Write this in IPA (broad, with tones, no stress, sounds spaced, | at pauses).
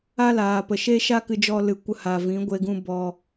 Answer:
a˦ l aː˨ p ə˨ ʃ e˦ ʃ a˦ k ɨ˧ d͡ʒ ɔ˧ l ɨ˨ kʷ ə˧ h a˨ v ĩ˨˦ ɡʷ e˧ ɡ ũ˧ b ɔ˧